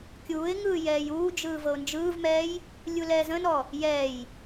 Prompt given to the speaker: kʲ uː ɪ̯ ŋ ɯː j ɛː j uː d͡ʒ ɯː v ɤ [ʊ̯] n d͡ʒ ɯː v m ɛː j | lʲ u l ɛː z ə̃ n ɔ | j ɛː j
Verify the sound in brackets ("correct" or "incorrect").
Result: correct